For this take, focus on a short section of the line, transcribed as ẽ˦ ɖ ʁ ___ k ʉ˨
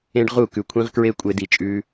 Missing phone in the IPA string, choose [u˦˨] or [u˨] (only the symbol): u˦˨